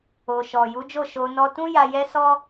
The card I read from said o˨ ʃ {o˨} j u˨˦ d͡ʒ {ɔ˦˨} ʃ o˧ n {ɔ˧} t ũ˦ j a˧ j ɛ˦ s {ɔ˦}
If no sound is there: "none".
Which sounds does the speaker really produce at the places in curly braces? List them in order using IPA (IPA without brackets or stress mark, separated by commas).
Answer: ɔ˨, o˦˨, ɔ˧, ɔ˦